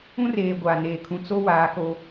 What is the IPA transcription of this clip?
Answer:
ũ˦ r eː˨ ɡʷ aː˨ n eː˨ kʰ ũ˨ t͡s o˦ w aː˨˦ k o˦

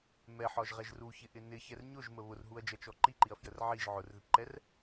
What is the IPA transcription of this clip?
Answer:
m ɛ ħ ɒ ʒ ʁ ɛ ʒ r u ç ɪ ʔ ɪ n ɪ ç ɛ r ɲ ʊ ʒ m ə β ʊ r ɦ u ɐ̯ d͡ʒ ʌ t͡ʃ ɔ ǃ i ǃ i ɐ̯ f j ə r ʕ i ʒ ʕ ʊ r ð ɪ p ǃ ɛ r

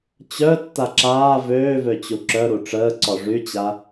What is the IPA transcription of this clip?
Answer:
t͡ɕ œ tː a ǁ aː v øː v ø t͡ɕ u ǁ œ ɾ u ʈ͡ʂ əː ǀ ɔ ʐ y t͡ɕ a

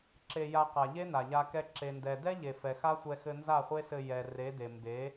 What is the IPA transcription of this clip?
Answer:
ǁ e˧ j a˧ q a˨ ʎ e˦ n a˨ ʎ a˧ k ɛ˧ ǁ e˨ n d ɛ˨ d ɛ˦ ʎ e˨ f ɛ˨ x a˦ sʷ ɛ˧ x ɘ˧ n z a˦˨ χʷ e˦ s ɘ˧ j ɛ˨ r e˨˦ d e˨ m b e˨˦

